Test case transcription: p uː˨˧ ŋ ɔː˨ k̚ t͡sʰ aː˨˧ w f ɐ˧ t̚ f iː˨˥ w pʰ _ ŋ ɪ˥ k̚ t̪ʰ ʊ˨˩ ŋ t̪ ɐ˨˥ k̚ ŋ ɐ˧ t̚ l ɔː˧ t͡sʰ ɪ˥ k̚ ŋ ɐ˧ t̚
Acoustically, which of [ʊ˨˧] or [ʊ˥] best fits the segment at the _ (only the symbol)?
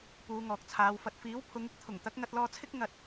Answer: ʊ˨˧